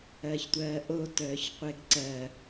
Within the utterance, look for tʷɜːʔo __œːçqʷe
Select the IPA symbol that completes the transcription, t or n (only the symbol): t